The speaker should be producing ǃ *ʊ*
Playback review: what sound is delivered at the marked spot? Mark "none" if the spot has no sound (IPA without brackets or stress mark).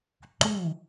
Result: u